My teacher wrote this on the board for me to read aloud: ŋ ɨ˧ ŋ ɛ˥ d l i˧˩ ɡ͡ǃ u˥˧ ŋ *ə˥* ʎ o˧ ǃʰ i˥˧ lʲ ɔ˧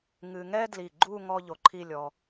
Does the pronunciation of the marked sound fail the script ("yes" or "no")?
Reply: yes